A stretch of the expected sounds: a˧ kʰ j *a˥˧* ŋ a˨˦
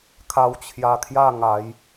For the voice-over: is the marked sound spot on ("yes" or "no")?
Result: yes